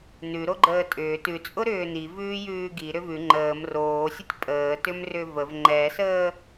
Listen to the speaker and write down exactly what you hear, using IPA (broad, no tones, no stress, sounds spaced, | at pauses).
n ʉ ɾ o ɡ͡ǃ əː tʼ ʏː t ʉ t͡sʼ ʊ ɾ ʏː n i v ʉː j ʉː ɡ i ɾ ʏ v ʉ ŋ͡ǃ əː m r oː sʲ ə tʲ pʼ əː t ʏ m r ʏ v ə v ŋ͡ǃ ɛ s əː